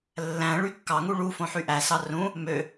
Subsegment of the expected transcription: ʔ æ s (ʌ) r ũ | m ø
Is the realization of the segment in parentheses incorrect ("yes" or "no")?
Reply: yes